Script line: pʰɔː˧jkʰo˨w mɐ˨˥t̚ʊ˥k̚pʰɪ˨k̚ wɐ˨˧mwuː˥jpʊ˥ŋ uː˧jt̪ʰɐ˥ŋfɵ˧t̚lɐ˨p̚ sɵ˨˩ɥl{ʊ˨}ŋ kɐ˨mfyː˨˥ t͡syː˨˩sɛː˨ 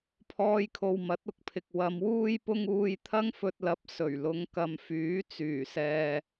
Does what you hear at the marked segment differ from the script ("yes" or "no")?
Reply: yes